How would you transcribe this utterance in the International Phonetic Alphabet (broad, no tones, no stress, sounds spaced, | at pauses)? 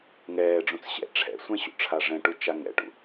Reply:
ŋ ɛː ɖ͡ʐ ũ t͡s ɕ ɛ̰ ʈ͡ʂʰ ɛ̰ sʷ ɛ̃ ɕ ṵ ʈ͡ʂʰ a ʐ ɛ̃ ʈ u t͡ʃ a ŋ ɛ̰ ʈ ṵ